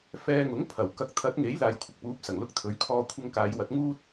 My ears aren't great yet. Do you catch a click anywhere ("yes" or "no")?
no